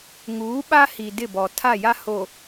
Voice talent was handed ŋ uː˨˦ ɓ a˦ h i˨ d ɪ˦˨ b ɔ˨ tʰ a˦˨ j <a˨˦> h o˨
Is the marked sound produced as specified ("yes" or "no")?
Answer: no